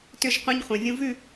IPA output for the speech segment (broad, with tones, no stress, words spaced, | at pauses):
tʏ˦˨ʒqʷã˦ɲ χʷɛ̃˨vʲũ˦ vʉ˦˨